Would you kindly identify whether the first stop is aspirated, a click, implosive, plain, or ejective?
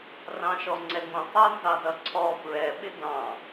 click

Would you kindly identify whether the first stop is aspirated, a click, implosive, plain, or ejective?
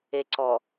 click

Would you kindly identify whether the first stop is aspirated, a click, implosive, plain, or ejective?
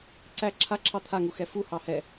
click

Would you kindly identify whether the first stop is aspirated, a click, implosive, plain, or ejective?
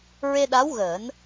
implosive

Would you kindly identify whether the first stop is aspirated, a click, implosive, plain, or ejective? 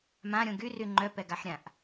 plain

